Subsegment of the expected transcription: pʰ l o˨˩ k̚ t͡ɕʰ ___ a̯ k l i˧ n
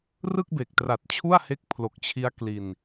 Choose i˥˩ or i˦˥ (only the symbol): i˦˥